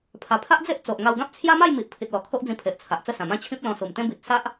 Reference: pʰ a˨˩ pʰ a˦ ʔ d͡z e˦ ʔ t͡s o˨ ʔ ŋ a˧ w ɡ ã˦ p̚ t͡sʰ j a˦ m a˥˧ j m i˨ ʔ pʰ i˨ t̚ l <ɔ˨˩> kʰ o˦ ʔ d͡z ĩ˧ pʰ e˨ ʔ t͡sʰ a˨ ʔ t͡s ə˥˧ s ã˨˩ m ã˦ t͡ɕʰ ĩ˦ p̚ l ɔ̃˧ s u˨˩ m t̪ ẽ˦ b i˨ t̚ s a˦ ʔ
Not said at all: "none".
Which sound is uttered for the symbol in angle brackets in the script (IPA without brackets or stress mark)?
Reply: ɔ˨˩